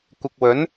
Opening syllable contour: low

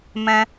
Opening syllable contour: high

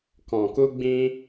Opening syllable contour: low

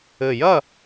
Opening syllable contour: low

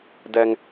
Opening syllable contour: low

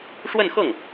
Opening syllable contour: falling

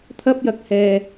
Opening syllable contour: high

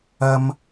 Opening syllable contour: high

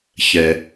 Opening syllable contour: low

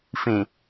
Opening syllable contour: low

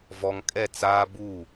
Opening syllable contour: low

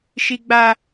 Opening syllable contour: high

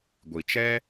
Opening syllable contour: low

